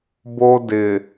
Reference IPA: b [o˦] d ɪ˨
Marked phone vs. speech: correct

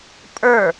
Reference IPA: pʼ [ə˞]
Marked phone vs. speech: correct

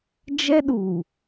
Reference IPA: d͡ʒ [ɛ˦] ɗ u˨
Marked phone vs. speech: correct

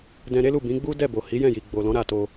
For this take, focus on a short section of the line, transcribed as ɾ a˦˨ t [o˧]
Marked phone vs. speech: correct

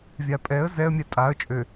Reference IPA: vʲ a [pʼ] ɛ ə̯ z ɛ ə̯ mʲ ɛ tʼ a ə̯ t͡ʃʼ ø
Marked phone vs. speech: correct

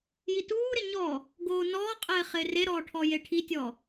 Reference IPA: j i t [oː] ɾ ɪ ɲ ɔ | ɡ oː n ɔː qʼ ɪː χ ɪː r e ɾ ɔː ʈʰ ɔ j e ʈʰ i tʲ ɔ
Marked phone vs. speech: incorrect: uː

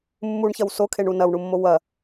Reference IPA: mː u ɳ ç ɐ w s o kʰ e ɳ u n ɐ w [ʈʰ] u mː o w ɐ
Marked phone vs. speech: incorrect: ɳ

